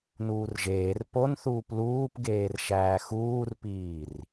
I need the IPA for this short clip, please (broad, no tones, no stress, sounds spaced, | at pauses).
n uː r ʒ eː r p o n θ uː p l uː p ɡ eː r ʃ æː x uː r p iː r